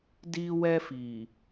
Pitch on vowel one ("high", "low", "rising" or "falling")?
high